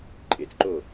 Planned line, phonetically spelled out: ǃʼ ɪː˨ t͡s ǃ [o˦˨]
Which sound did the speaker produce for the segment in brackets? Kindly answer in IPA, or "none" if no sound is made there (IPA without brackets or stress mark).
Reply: o˦˨